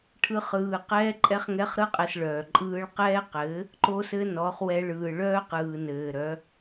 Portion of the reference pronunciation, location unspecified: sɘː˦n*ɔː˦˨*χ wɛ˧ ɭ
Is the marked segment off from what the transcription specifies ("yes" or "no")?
yes